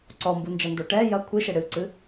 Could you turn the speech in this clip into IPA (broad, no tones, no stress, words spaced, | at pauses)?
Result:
ǀɔmbund͡ʒɐndo ʈɛ jɐ kʷʰɨʃɘ ɽɨǀɨ